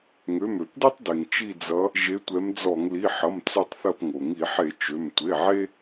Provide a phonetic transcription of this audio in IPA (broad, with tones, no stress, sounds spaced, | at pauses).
ŋ ø˩˧˩ m ø˧˩˧ p d i˦ tˤ d e˩ ŋ t͡ʃ i˦˨ d͡z ʌ˨˦ | ʒ e˨˦ tʷ ɛ˨˦ m d͡z ɔ˧˩˧ ŋ l i˩˧˩ ħ ʌ˩˧˩ m t͡s ø˦˨ tˤ θ ɐ˦˨ p ŋ o˩ ŋ i˧˩˧ ħ e˧˩˧ t͡ʃ ø˩˧˩ m tʷ e˩˧˩ ʕ e˦